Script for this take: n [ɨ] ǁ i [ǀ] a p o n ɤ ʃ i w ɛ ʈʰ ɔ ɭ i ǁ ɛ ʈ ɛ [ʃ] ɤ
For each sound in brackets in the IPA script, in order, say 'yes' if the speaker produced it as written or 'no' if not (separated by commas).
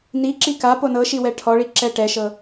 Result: no, no, yes